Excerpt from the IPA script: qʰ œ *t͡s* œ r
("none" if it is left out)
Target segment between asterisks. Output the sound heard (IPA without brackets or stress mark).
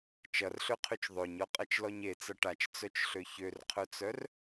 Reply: t͡s